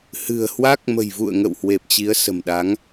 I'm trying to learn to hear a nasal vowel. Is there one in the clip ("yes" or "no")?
no